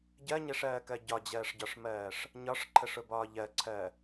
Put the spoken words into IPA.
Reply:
ɟ ɜ ɲ ɛ ʂ ɜː k ɜ ɟ ɒ d͡ʑ ɜː ʂ ɟ ɒ ʂ m ɜː ʂ | ɲ ɒ ʂ ǃʰ ə ʂ ʊ b ɒː ʎ ɜ ǀʰ ɜ

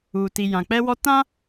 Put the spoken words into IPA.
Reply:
uː˨ t i˨ j ã˨ k͡p ɛ˦ w ɔ˦ t ã˦

